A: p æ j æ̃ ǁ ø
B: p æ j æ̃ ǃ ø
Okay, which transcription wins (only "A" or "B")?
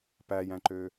B